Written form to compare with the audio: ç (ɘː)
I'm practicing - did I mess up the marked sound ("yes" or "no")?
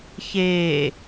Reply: yes